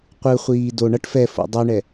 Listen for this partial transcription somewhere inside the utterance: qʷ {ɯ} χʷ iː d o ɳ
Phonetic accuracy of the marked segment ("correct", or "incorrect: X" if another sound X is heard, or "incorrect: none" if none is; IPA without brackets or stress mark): correct